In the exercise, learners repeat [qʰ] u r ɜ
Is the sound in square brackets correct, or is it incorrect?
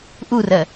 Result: incorrect